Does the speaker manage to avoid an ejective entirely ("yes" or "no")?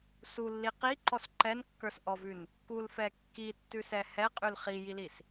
no